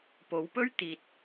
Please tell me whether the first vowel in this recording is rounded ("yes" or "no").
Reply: yes